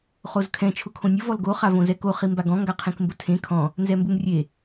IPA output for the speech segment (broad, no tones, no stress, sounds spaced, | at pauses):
χ o z kʰ ɛ̃ t͡ʃʰ ʊ kʰ õ nʲ ʊ v ɔ l ɡ o χ a v õ z ɛ k o χ i m b a ɡ ɔ̃ ŋ ɡ a qʰ ẽ k m b ʊ tʰ ẽ kʰ ɔ̃ | n z ɛ m b u ŋ rʲ e